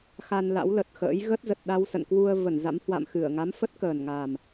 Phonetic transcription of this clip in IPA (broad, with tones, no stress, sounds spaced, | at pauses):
x a˧ n l a̰˧˥ w l ə˨˩ t̚ x ə̰ː˧˥ j ɣ ə˦˥ t̚ z ə˨˩ t̚ ɗ a˧ w s ə̰˧˨ n k w u˧ ə̯ v ə˧˩ n z a̰˧˥ m h w a̰˧˨ m x ɨ˧˩ ə̯ ŋ a˨˦ m f ə˦˥ t̚ k əː˨˩ n ŋ a˨˩ m